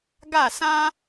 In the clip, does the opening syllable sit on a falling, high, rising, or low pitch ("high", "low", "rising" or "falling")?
falling